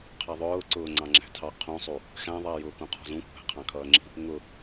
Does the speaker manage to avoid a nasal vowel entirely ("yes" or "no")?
no